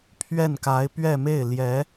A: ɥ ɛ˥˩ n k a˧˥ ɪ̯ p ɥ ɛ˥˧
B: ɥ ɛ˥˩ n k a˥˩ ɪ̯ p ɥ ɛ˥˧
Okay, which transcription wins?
A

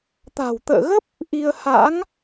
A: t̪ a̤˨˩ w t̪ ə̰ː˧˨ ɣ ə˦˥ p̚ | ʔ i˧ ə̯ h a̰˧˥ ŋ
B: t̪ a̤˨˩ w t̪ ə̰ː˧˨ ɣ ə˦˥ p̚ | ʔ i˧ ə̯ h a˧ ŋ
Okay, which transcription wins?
A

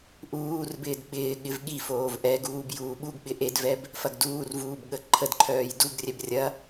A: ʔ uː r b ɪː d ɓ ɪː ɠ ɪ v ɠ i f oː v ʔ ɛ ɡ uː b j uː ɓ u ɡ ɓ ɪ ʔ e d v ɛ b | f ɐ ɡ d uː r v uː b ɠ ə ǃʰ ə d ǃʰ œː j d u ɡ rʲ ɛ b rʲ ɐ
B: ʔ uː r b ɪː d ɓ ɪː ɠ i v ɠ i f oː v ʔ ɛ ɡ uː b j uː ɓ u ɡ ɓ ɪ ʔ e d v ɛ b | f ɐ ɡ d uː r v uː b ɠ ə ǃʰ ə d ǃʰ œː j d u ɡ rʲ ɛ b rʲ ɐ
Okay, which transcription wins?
A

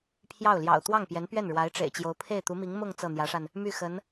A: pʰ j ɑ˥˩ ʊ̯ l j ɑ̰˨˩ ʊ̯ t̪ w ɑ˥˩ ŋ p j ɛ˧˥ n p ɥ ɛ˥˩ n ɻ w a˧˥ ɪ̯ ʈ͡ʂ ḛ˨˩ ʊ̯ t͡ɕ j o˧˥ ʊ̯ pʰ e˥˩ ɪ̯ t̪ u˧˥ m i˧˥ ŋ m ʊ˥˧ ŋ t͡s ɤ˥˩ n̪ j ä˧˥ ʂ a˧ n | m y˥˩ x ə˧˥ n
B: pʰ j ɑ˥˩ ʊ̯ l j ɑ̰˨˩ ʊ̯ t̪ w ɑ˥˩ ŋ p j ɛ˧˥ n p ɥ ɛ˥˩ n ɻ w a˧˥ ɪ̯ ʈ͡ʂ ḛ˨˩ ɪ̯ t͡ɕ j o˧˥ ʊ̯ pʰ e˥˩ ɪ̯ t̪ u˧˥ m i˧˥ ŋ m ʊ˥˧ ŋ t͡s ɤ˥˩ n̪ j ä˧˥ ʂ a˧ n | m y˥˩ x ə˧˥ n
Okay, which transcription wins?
B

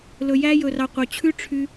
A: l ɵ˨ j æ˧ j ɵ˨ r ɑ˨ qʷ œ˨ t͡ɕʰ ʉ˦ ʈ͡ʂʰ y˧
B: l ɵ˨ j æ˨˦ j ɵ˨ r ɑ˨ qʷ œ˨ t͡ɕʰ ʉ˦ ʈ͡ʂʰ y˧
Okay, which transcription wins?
A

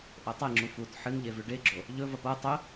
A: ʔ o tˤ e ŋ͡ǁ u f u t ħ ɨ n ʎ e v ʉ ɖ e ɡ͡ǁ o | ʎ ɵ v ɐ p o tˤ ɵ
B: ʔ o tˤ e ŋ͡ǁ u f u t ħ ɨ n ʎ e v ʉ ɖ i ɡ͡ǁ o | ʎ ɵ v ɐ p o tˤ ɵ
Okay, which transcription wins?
A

